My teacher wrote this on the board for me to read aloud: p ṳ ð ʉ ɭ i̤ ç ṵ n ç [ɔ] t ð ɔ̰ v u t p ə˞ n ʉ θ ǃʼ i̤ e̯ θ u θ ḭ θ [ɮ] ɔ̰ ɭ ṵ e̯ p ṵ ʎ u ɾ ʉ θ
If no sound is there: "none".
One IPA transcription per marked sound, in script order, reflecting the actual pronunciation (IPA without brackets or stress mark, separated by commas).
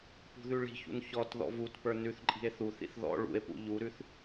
ɔ, ð